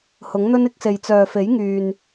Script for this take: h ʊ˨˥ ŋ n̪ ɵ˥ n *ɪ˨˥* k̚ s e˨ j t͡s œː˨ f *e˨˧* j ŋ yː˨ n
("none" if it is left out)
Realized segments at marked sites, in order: ɪ˨˥, e˨˥

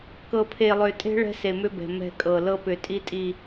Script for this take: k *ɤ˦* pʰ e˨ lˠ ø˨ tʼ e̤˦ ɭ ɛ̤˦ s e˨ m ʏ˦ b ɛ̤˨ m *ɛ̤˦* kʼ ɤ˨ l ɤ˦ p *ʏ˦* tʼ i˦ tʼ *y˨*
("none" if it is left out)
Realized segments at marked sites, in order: ɤ˨, ɛ̤˦, ʏ˨, i˨

